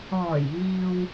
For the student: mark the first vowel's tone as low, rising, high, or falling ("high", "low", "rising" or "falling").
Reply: low